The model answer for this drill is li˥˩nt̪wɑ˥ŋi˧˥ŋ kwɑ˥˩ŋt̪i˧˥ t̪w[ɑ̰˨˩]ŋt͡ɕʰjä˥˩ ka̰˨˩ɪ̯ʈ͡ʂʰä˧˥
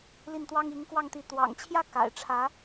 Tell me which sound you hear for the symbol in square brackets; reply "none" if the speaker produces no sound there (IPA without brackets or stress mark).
ɑ̰˨˩